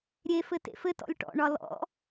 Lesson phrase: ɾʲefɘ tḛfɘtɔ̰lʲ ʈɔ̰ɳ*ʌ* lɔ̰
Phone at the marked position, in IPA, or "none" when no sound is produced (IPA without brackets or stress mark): ɒ